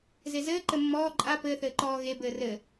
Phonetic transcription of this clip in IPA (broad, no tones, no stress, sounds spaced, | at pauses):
z e z ɘː ǃ ɘ mː ɔː ǃʼ a p ɘː θ ɘː ǃ ɔː ɣ e b ɘː r ɘ